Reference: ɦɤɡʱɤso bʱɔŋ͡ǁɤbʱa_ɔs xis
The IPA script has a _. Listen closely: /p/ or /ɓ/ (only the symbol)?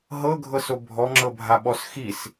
ɓ